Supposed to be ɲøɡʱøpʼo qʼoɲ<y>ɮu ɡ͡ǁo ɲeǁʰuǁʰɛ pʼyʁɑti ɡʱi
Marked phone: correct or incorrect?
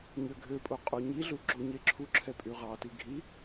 incorrect